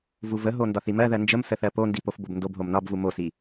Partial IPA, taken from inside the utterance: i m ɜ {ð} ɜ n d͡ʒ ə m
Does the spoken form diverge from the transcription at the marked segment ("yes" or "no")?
no